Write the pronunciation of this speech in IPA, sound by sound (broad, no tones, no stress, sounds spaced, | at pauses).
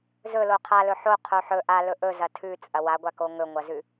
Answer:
z ɵ l o qʰ a l ɵ ħ o qʰ o ħ ɵ ʔ a l ɵ ʔ ɵ z ɐ tʰ ʉ t͡sʼ ɐ w a ɡʷ a k o ŋ ɵ ŋʷ ɐ z ʉ